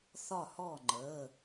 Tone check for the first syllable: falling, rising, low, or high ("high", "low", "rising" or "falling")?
falling